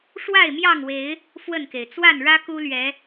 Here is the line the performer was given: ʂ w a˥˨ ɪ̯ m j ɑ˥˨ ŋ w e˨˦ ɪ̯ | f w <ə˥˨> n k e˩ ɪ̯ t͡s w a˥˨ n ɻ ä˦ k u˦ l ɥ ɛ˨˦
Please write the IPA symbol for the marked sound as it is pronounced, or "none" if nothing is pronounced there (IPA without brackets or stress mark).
ə˥˨